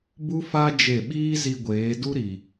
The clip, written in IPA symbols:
b u˦ f a˦ d͡ʒ e˦˨ ɓ iː˦ z i˧ ɡʷ eː˨˦ d u˦ ɾ i˨

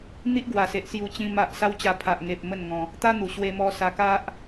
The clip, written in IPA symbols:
n̪ i˦ ʔ ɡ w a˨˩ s e˨ ʔ s j u˧ t͡ɕ ĩ˧ m a˨ ʔ s a˦ w t͡ɕ a˧ pʰ a˨ ʔ ŋ e˨ p̚ m ə˥˧ n ŋ ɔ̃˧ | t̪ a˦ n̪ u˨˩ ɕ w e˧ m ɔ˧ s a˧ k a˦ ʔ

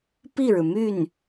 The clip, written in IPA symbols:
p i˥˩ ɻ ɻ̩˩ m y˥˩ n

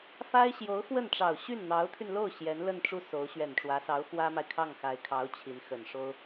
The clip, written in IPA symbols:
f a˥ ɪ̯ ɕ j o˧˥ ʊ̯ x w ə˥˩ n ʈ͡ʂ ɑ˨˩ ʊ̯ ɕ y˥˩ n n̪ ɑ˧˥ ʊ̯ t̪ʰ y˧ n l o˥˩ ʊ̯ ɕ j ɛ˧˥ n l ə˥˧ n ʈ͡ʂ u˥˩ s o˧˥ ʊ̯ ɕ ɥ ɛ˨˩ n ʈ͡ʂ w ä˧˥ s ɑ˧˥ ʊ̯ x w ä˥ m a˨ ɪ̯ kʰ ɑ˥˩ ŋ x a˧˥ ɪ̯ kʰ ɑ˧˥ ʊ̯ t͡ɕʰ i˧˥ n x ə˨˩ n ʂ o˥ ʊ̯

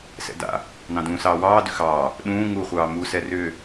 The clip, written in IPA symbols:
s ɛ̰ d a̰ | n ɑ̃ d ũː s ɑː w ɑː d ʏ x ɑː | ɗ ũː ŋ u χʷ ɑː m u s ɛ r ʏː

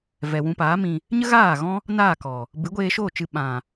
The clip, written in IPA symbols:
v ɛ˨ w ũ˧ p aː˨˦ m ĩ˧ | ɲ ə˦ ɣ aː˦˨ ɣ ɔ̃˦ | n aː˦˨ k ɔ˨ | b ɨ˨˦ ɡʷ eː˧ ʃ oː˦˨ t͡ʃ ɨ˧ ɓ ã˨

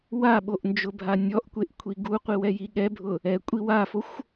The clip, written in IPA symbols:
w a ɓ o ʔ n d͡ʒ ʊ bʱ a nʲ ɔ ʔ kʷ e ʔ kʷʰ i ɡ u qʷ i w ɛ j i ɠ ɛ bʱ ʊ | ɛ kʷʼ i w a f o xʷ

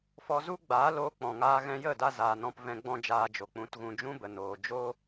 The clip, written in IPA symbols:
f ɔ˧ z u˦ ɡ͡b aː˨˦ l oː˧ k͡p ɔ̃˨ ŋ aː˧ ɣ ɛ̃˧ j ə˦˨ d a˧ z aː˨ n ɔ̃˧ p v ɛ̃˧ ɡ͡b ɔ̃˦ d͡ʒ aː˧ d͡ʒ o˨ k͡p ũ˨˦ t ɣ ũ˧ d͡ʒ ũ˦ b ə˨ n oː˨ d͡ʒ o˦

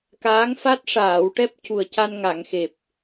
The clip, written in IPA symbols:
k aː˧˥ ŋ f a˦˥ t̚ ʂ aː˨˩˨ w ʈ ɛ˦˥ p̚ c u˨˩ ə̯ c a˧ n ŋ a˨˩˨ ŋ x e˨˩ p̚

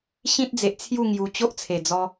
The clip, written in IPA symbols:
ɕ ĩ˦ t̚ d͡z e˨ ʔ t͡sʰ j u˥˧ ŋ j u˧ t͡ɕ o˦ ʔ t͡sʰ e˨˩ d͡z ɔ˧

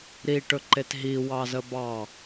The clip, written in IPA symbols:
ɾ i ʈ ɵ ǃ e t ɦ i w ɑ z ə b ɑ

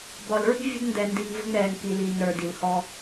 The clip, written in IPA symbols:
b ɒ˨ l ɹ i̤˦ vʲ ə̤˦ d n d ɛ˨ n d i˨ ŋ v ə̤˦ ŋ ɾ ɛː˨ ŋ k i˨ l iː˨ ŋ ɾ ə˞˨ d i˨ l h ɔː˦

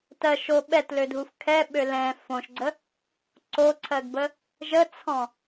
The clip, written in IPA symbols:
t ɜ ʃ o ɓ ɛ t l ø dʱ u f kʰ ɛ ɓ ø l ɛ̃ f õ ʃ ɡ͡ǀ ə | ǀ o ǀʰ ɜ ɡ b ə | ʒ ə t͡sʰ ɔ̃

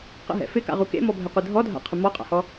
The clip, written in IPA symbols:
q ə̰ ɦ ɛ̰ f ɪ k a̰ ʁ u k ḛ m ɔ bʱ ɛ qʷ ɪ dʱ ɔ dʱ a̰ qʰ ə m ɔ qʼ a̰ h ɔ

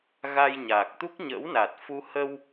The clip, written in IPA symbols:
ɣ a˧ j ɲ aː˨˩ k̚ t̪ u˦˥ k̚ ɲ ə̰ː˧˥ w n aː˨˩ t̚ f u˧ h ə˧ w

